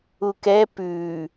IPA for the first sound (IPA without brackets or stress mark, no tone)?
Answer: u